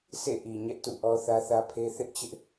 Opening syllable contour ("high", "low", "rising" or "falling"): falling